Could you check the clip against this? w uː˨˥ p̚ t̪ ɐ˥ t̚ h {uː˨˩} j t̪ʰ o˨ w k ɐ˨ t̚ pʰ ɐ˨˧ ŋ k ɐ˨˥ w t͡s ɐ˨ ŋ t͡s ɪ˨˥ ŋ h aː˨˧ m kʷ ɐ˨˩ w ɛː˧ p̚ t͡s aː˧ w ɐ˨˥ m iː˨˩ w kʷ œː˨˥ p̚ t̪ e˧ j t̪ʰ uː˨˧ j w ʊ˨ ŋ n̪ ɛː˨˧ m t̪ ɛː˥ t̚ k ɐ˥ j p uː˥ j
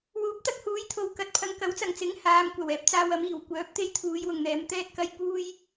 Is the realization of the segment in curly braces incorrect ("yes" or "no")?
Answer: yes